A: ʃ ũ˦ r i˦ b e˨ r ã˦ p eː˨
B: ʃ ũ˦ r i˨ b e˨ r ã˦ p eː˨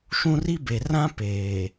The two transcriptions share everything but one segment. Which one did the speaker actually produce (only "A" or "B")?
A